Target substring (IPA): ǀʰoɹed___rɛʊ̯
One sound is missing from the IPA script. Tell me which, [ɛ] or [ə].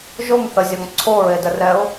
ə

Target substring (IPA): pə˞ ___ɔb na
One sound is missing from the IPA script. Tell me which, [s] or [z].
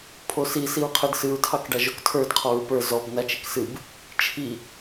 z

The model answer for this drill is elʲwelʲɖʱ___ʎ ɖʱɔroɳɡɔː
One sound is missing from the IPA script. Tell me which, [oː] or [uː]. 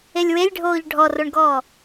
oː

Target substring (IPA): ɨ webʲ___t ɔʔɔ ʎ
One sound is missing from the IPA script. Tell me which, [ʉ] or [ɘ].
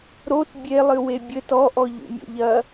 ɘ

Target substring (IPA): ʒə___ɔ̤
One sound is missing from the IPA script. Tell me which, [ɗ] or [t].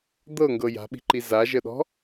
ɗ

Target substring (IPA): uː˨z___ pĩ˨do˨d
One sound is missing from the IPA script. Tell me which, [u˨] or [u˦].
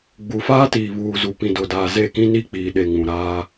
u˨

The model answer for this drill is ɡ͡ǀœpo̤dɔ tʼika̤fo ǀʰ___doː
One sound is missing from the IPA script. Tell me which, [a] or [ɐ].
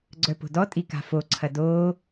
ɐ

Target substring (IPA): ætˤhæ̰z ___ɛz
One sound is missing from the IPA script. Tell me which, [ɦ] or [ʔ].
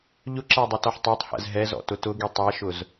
ɦ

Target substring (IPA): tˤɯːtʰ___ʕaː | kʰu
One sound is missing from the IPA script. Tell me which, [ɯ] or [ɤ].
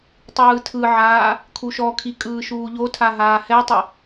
ɯ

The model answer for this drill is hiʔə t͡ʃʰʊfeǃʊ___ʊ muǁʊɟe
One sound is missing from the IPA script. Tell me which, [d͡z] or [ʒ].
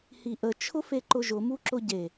ʒ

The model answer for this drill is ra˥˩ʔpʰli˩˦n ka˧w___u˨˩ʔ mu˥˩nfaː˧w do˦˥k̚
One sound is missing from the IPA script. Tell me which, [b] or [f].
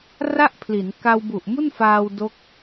b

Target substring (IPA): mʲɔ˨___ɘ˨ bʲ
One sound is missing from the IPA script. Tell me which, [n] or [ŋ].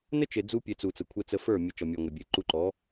ŋ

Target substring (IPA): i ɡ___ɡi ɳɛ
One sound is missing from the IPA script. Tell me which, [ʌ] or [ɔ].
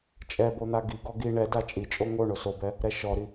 ɔ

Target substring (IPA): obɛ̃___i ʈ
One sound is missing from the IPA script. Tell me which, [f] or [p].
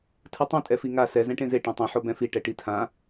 f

